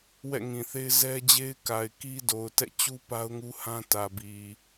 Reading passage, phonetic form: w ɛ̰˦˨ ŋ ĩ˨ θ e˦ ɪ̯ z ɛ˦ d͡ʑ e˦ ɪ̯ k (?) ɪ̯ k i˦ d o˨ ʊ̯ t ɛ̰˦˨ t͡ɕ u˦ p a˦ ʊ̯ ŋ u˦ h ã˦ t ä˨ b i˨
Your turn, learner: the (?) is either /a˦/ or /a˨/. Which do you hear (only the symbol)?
a˨